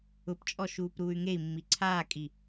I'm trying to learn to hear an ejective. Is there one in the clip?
yes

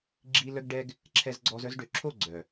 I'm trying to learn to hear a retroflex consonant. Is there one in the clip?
yes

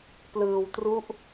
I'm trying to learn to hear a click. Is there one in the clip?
no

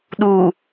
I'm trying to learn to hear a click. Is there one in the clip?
no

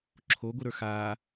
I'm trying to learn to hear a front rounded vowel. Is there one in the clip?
no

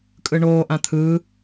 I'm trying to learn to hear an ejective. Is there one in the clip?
yes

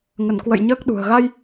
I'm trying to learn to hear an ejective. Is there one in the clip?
no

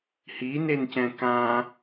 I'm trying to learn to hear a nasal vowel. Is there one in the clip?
yes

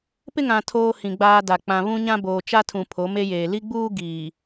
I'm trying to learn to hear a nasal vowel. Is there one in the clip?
yes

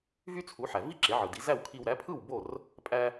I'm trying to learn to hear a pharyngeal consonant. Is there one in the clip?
yes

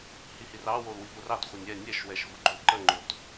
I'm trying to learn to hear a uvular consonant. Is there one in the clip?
yes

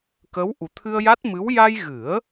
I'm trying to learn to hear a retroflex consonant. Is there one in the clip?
no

